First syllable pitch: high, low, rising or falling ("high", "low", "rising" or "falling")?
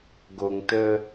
low